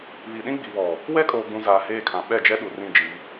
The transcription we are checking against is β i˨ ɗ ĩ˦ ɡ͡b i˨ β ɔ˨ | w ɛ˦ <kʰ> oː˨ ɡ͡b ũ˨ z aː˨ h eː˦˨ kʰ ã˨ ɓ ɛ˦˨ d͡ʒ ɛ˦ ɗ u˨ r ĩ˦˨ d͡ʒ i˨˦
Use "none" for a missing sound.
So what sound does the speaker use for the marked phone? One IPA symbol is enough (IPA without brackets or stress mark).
kʼ